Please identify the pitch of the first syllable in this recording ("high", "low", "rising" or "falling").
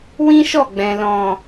high